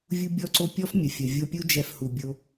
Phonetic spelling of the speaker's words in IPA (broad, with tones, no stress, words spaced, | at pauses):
vʲu˦bʲɔ˦ǀo˦ pʲɔ˦fmʲə˨fʲə˨ vʲo˧pʲu˦ d͡ʒɛ˧fhu˨bʲo˧